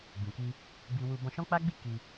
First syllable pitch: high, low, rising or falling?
low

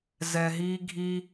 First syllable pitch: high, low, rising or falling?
low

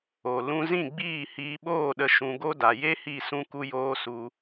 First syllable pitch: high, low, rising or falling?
low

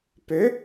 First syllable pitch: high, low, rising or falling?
rising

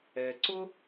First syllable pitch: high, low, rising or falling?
low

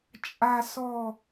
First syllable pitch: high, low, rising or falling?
low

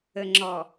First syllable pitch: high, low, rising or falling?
low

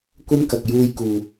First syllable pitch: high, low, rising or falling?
high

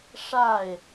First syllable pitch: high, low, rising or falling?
falling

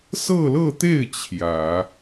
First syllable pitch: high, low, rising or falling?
falling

